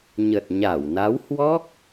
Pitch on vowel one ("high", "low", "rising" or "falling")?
low